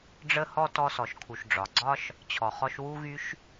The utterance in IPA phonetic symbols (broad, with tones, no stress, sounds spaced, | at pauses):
ɖ͡ʐ ə˥ h ɔ˥ t ɔ˧ s ɔ˩ ʃ kʰ u˩ ʃ ɖ͡ʐ ɒ˩ ɡ͡ǀ ɒ˥ ʃ | t͡ɕʰ ɔ˩ χ ɔ˧ ʃ w u˥ ɣ y˥ ʃ